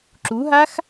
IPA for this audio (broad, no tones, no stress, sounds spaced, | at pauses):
ǁ u ɦ a x